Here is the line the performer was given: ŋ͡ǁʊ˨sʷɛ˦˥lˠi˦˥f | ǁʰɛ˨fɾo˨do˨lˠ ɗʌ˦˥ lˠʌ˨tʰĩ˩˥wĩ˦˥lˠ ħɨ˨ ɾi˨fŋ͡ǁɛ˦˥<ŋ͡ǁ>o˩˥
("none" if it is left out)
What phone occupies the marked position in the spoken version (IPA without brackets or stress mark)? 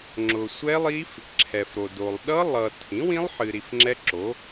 ǁ